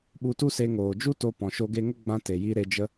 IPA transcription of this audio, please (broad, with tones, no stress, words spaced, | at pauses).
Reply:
ɓu˧tu˦se˧ ŋoː˨d͡ʒu˦to˧ pɔ̃˨ʃo˧ɡe˧ŋə˦ ɡ͡bã˧ te˨ji˧ ɾe˧d͡ʒə˦